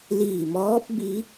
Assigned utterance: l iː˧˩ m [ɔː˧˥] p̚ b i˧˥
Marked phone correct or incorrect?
correct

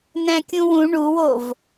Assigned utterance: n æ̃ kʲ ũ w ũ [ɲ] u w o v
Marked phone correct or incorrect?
incorrect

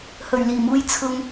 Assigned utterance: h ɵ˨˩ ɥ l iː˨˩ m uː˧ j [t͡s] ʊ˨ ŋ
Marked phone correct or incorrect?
incorrect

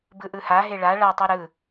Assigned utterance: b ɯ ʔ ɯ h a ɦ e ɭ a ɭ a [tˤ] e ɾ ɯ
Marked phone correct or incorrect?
correct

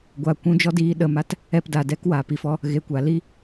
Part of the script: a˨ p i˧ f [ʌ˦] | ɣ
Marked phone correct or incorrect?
incorrect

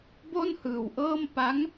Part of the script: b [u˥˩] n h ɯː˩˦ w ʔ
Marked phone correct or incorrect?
incorrect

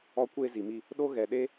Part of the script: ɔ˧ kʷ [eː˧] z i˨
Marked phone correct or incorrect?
correct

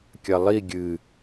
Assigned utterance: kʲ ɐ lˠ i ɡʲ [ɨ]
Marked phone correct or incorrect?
correct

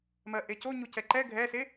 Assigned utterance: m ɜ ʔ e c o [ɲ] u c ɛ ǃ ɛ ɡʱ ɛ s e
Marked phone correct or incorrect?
correct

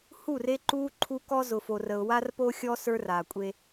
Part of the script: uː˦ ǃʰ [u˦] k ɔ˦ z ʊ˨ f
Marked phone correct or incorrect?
correct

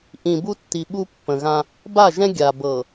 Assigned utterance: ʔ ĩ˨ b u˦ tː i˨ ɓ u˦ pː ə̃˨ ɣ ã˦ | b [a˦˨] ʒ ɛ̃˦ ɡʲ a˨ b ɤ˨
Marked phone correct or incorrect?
correct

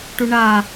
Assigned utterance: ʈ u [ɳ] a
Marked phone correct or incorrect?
correct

